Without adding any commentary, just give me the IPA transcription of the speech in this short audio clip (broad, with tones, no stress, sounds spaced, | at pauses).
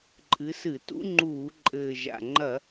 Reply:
ǃʼ ɨ˨˦ s ɨ˧˩˧ t ṵ˦˥ ŋ͡ǃ uː˧˩˧ ǃʼ ɘː˨˩ ʒ a̰˨˩ ŋ͡ǃ ɐ˧˩˧